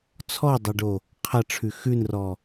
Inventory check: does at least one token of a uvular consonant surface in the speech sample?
yes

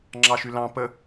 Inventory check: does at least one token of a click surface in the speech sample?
yes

